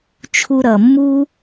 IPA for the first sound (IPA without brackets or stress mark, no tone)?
t͡ʃʰ